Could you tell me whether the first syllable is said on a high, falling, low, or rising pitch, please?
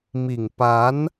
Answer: low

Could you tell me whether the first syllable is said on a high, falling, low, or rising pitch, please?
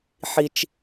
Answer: high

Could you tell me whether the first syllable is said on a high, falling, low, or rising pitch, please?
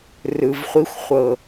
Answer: low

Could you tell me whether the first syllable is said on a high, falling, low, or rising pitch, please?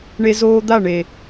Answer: high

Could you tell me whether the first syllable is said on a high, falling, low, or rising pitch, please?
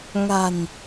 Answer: low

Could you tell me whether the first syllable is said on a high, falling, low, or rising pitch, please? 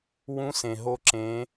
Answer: rising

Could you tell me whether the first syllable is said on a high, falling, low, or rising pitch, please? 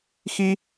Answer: high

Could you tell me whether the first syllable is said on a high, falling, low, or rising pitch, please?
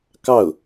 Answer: falling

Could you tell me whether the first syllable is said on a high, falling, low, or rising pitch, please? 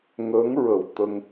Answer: rising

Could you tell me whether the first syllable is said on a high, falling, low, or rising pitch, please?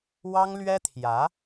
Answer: high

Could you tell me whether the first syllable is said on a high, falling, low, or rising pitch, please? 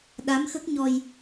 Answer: rising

